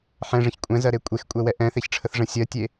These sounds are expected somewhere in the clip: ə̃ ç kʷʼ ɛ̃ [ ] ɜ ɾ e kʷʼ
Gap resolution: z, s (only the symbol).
z